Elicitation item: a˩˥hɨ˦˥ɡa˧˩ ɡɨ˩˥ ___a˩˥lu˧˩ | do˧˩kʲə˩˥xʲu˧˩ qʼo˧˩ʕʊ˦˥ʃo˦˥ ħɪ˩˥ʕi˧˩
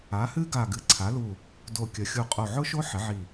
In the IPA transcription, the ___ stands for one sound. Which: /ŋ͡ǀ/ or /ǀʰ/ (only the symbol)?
ǀʰ